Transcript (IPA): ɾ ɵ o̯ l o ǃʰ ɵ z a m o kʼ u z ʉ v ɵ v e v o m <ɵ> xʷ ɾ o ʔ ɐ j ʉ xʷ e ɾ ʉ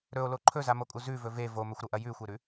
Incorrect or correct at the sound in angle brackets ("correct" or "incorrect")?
correct